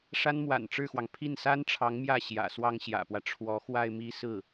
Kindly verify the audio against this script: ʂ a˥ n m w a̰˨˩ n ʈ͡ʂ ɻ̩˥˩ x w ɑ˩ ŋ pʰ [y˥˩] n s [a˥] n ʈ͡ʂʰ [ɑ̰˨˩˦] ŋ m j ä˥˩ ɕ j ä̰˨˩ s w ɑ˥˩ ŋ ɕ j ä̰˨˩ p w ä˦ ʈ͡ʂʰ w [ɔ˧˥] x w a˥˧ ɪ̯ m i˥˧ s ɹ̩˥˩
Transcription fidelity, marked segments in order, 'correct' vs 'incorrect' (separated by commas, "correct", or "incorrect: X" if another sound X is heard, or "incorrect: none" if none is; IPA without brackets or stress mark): incorrect: i˥˩, correct, incorrect: ɑ˧˥, correct